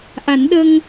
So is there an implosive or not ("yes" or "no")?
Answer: yes